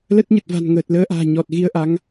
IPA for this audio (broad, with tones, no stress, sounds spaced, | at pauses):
l ə˦˥ t̚ ɲ ə˨˩ t̚ v a̤˨˩ n ŋ əː˨˩ t̚ l əː˧ ʔ a̤ː˨˩ ɲ ɔ˨˩ t̚ ɣ i˧ ə̯ ʔ a˨˦ ŋ